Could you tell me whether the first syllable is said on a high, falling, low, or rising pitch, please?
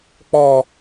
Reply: low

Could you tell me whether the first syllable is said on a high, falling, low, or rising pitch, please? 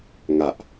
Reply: low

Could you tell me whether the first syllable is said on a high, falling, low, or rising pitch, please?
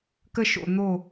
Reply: high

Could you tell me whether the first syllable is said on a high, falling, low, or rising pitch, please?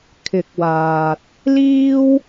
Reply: rising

